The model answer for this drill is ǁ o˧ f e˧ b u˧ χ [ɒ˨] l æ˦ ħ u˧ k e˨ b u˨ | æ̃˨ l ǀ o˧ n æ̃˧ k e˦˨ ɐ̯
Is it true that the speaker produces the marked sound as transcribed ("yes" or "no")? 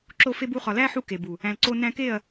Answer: yes